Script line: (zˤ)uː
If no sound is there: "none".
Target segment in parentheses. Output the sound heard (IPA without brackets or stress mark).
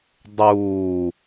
dˤ